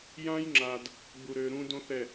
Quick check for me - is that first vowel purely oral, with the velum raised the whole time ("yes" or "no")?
no